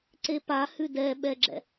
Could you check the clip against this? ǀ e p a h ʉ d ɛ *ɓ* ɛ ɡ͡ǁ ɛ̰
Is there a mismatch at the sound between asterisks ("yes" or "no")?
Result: no